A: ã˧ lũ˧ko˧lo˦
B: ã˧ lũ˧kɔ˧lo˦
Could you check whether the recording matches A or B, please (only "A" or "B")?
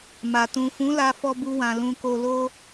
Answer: A